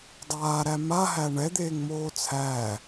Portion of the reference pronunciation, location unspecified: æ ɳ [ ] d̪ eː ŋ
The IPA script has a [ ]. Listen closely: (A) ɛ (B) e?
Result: A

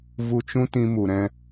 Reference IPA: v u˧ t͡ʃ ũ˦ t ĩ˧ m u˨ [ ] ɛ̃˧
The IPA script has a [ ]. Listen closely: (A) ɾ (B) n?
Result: A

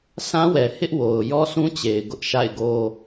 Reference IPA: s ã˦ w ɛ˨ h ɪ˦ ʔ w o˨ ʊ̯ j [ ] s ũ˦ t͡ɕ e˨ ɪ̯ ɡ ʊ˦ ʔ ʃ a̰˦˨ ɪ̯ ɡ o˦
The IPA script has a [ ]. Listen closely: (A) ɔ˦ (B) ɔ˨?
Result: A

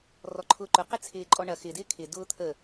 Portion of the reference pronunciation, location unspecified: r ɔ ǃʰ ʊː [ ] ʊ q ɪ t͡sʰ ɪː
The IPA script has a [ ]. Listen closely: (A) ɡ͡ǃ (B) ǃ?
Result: B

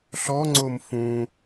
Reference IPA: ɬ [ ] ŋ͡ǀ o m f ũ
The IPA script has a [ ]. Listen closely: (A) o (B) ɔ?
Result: B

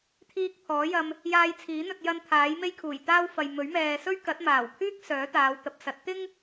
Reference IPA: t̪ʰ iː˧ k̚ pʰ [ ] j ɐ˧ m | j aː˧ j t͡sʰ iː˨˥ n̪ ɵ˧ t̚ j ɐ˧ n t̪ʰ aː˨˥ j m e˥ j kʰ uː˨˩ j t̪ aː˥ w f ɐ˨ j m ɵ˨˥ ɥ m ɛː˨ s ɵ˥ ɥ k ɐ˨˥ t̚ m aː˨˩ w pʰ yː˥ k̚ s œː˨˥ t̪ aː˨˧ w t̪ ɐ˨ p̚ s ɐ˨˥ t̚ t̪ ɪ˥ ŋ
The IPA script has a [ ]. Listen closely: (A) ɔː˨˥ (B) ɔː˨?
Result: A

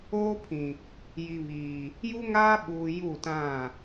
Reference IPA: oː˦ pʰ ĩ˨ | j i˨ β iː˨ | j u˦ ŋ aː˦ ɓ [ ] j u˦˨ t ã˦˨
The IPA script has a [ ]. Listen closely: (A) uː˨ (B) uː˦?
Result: A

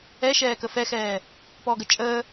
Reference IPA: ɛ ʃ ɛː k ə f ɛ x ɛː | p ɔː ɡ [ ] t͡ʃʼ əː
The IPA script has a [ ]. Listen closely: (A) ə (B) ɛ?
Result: A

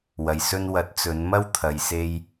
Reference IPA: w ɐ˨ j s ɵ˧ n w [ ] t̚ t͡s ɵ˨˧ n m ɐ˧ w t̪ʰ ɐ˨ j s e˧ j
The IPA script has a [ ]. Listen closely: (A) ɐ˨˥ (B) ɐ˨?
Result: A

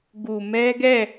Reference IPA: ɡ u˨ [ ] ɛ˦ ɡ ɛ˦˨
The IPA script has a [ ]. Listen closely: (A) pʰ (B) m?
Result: B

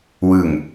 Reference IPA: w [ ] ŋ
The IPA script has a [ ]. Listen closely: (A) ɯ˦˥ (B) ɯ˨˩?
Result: B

